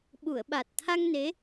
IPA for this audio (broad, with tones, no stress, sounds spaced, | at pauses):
ɓ u˨˩˨ ə̯ ɓ a˨˩ t̚ t̪ʰ a˧ ŋ n e˧˥